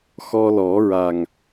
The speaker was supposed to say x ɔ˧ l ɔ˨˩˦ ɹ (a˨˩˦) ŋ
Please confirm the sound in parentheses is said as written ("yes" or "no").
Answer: no